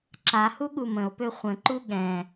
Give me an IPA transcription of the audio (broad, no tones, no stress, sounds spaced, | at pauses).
ǁ a h u ɠ u m ə̃ o̯ p ø χʷ ə̃ ǃ u ɠ ɛ̃